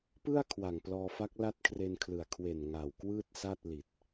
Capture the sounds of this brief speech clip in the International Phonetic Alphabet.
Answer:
p ɯ˥˩ a̯ kʰ w a˨˩ ŋ p l ɔː˧ f a˦˥ k̚ l a˥˩ t̚ kʰ r e˧ n kʰ l ɯ˨˩ a̯ kʰ w e˨˩ n ŋ a˨˩ w k w ɯː˥˩ t̚ s a˥˩ t̚ l i˨˩ t̚

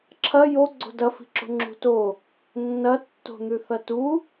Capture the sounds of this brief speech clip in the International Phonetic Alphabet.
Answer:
ǁʰ ɐ j o ɡ͡ǀ o̤ d ɐ f i̤ ǁ o̤ ŋ͡ǁ ṳ t o | nː ɐ tː o̤ n̪ ʉ θ ɐ t u

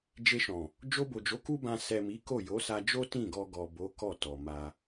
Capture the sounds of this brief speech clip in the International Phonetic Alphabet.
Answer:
d͡ʒ e˧ ʃ ɔ̃˨ | d͡ʒ o˧ b o˨ d͡ʒ o˨˦ k u˦ b ã˧ s ɛ˨ m i˨˦ k o˦˨ j o˨˦ s a˧ d͡ʒ o˦ t ĩ˦˨ ɡ ɔ˧ ɡ ɔ˨ b o˨˦ k ɔ˦˨ t ɔ˨ m a˧

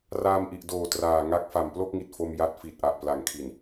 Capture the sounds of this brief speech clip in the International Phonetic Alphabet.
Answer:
r aː˧ m ʔ i˨˩ ʔ d oː˨˩ t r aː˨˩ ŋ a˦˥ k̚ f a˨˩ m p l o˥˩ k̚ ŋ i˨˩ t̚ f o˧ m j a˦˥ t̚ f i˨˩ t̚ ʔ a˨˩ ʔ p l a˨˩ ŋ kʰ i˨˩ n

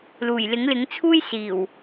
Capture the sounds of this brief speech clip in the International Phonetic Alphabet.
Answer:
l uː˨˩ j l ɪ˨˥ ŋ l ɪ˨˥ ŋ t͡sʰ uː˥ j s iː˨˩ w

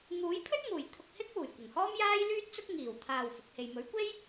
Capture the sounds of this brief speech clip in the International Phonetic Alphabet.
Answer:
ŋ uː˨˥ j pʰ ɵ˥ t̚ ŋ uː˨˩ j t̪ʰ ʊ˧ k̚ h ɪ˥ k̚ w uː˨˩ j kʷ ɐ˨˩ ŋ h ɔː˥ m j aː˥ j l yː˥ t̚ t͡s ʊ˥ k̚ ŋ iː˨˩ w t̪ʰ aː˨ w f ʊ˨˥ k̚ h e˧ j m ɵ˨˥ ɥ kʷ e˥ j

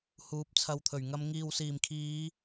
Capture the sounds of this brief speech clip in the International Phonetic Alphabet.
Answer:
h uː˨˥ p̚ t͡sʰ ɐ˨˧ w t̪ʰ ɵ˨˩ ɥ ŋ ɐ˧ m ŋ iː˨ w s iː˨˩ m kʰ iː˨˧

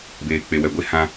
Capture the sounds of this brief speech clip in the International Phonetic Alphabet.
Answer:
b eː˨ k͡p e˨ w ɛ˨ ɡʷ e˦ h ã˦

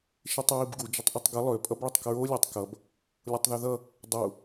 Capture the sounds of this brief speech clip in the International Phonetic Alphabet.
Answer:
ʃ i tˤ ɹ i b ɡ u d͡ʒ ʌ tˤ ʔ i tˤ ɡ ʌ lˠ ø pʼ ʌ b ɭ ʌ tˤ k ɹ o lʲ a tˤ k ʌ b | lʲ o tˤ ð ø ð ʌ | dˤ u

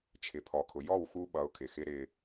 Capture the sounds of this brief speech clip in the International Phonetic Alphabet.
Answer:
t͡ʃʰ ɪ˩ pʰ ɔ˩ kʰ ʊ˩ j ɔ˥˩ w x u˥ ɓ ʌ˩˥ ʊ̯ kʰ ɪ˩ x ɪ˥ ɾ ɪ˧

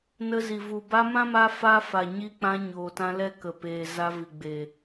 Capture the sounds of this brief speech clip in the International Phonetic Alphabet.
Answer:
n ə˧ z i˨ v u˨ b a˧ m ã˦ m a˧ f a˦ f a˨ ɲ i˧ k͡p ã˧ ɲ oː˨ t ã˧ l ɛ˦ k ə˨ p eː˨ z a˧ v i˨ ɡ͡b eː˨

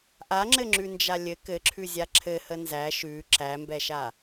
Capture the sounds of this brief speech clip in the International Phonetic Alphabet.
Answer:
ʔ a ŋ͡ǁ ɘ ŋ͡ǁ ʉ n d͡ʒ a lʲ ɘ k ɘ ǁʰ ʉ zʲ a ǁʰ ɘ h ə n z æ ʃ ʉ ǁ æ m b ɛ ʃ a

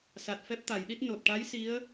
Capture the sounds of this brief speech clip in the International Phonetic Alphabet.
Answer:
s a˨˩ t̚ f ɛ˦˥ p̚ t̪ a˨˩˨ j ɗ i˦˥ t̚ n o˨˩ t̚ ʈ a˧˥ j s i˧˥ ə̯

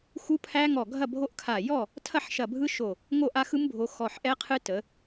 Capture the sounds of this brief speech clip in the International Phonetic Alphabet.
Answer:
x u˦˥ pʰ æ˦˥ ŋ ɔ˧˩ ɡʱ ɐ˥˨ bʱ o˦˥ ʔ kʰ a˧˩ j ɔ˥˨ | tʰ ɐ˥˨ ħ ʃ ɐ˧˩ bʱ ɯ˦˥ ʃ o˧˩ | ŋ o˥˨ ʔ a˦˥ x ɯ˦˥ m bʱ o˨˦ x ɔ˧˩ ħ ʔ ɛ˦˥ qʰ ɨ˦˥ t ə˨˦

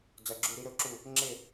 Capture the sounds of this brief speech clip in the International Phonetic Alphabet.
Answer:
d͡z ɐ˧˥˧ ɡ͡ǁ u˥˧ ɾ i˦˥ ɾ ɵ˥˧ ǁ u˥˧ | ŋ͡ǁ e˥˧

